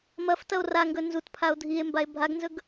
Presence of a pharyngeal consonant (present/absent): absent